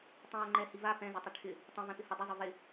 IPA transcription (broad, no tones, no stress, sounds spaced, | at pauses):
tˤ ĩ w ə ŋ͡ǃ ɛ h i v a p ɛ̃ z ʏ tˤ ɪ ʈʰ ɪ | tˤ ə̃ v ɛ̃ p ɪ h ə dˤ ə zˤ ʏ v ɪ